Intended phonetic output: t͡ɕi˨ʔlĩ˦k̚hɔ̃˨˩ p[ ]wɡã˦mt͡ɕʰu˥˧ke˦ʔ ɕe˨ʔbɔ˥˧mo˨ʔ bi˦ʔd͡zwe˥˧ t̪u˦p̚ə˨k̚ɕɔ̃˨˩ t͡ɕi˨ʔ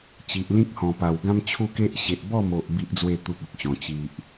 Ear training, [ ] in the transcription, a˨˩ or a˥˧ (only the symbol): a˨˩